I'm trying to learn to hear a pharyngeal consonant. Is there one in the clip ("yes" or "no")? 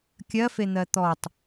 no